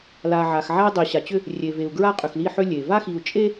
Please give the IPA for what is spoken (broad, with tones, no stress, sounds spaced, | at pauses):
l a˨ ʕ a˨ x ʕ a˦ i̯ dˤ i˨ ɕ a˨ t͡ɕ ʏ˦ | rʲ e˨ v e˨ u̯ ɡ ɹ a˦ qʼ ʏ˨ x l i˦˨ ħ ʏ˦ lʲ e˨ v a˦ x i˨ u̯ t͡ʃʼ e˦